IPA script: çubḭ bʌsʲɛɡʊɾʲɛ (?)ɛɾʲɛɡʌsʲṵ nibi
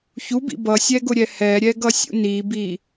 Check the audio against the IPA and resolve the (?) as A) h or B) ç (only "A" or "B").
A